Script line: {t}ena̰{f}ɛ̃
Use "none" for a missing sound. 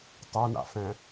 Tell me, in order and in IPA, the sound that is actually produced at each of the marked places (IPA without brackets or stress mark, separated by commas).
tˤ, f